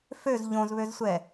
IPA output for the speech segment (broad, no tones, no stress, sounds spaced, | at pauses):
f ø z ʎ õ z β ø z sʷ ɛ